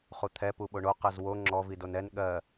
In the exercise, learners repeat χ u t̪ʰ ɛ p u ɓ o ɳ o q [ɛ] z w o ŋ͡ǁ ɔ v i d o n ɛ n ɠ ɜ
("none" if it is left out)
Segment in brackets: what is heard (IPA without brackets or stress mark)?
ɜ